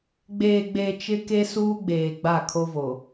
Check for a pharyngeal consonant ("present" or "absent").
absent